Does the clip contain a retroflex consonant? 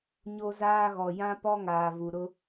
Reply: no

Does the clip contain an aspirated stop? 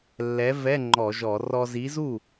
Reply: no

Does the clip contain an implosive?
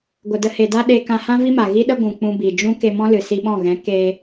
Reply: yes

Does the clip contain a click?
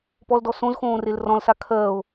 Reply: no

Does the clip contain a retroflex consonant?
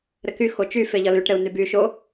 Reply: yes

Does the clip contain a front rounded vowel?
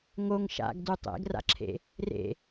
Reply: no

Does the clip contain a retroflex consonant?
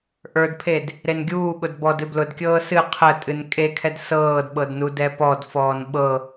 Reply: no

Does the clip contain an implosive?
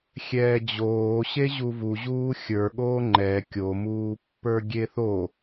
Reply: yes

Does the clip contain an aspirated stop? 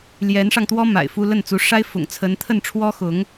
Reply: yes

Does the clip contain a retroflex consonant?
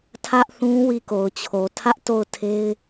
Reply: no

